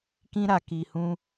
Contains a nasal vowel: yes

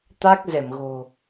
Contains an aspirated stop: no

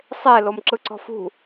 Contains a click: yes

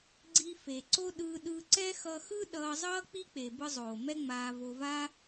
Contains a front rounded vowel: no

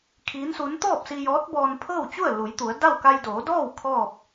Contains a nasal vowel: no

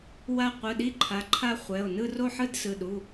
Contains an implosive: yes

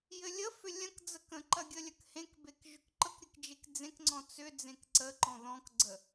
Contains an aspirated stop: no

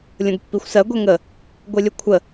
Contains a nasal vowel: yes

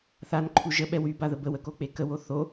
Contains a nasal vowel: no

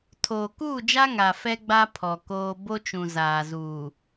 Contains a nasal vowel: yes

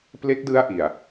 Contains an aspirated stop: no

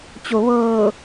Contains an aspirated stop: no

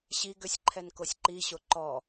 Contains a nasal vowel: no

